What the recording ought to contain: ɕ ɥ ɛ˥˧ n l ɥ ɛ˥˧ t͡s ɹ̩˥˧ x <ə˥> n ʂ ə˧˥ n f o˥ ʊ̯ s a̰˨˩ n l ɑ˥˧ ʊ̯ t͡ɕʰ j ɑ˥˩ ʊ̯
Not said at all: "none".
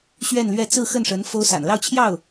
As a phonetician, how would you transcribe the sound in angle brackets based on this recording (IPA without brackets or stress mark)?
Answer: ə˥˩